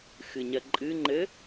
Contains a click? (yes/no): yes